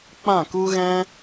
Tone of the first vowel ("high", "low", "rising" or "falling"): falling